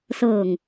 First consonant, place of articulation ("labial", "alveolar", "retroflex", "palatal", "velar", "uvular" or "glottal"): alveolar